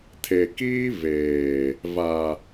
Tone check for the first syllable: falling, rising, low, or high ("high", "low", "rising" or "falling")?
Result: low